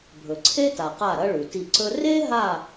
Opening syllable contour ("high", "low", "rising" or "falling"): low